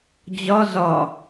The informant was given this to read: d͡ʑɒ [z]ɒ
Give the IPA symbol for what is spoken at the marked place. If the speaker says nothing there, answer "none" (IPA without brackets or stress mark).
z